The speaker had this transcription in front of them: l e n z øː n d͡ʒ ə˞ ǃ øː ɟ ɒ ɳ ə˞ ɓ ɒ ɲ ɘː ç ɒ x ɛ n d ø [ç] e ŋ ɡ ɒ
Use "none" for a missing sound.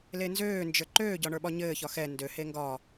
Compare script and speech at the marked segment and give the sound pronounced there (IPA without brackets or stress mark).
h